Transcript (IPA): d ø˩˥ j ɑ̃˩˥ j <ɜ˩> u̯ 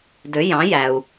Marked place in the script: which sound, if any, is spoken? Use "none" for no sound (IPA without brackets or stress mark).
æ˩